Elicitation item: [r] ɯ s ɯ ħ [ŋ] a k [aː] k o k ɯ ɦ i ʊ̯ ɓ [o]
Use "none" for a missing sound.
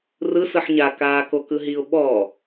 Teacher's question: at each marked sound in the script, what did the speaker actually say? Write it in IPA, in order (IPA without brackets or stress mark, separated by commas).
r, ɲ, aː, ɔ